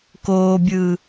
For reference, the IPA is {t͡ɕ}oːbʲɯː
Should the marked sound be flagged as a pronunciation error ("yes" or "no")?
yes